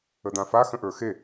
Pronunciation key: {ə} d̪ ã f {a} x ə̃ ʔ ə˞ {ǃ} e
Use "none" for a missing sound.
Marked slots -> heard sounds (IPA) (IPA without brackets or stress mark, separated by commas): ə, a, x